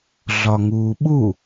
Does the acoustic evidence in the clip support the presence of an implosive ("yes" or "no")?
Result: yes